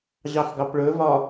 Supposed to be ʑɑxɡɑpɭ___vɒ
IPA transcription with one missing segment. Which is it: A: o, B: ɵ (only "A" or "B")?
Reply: B